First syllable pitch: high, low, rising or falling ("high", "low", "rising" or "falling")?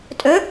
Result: rising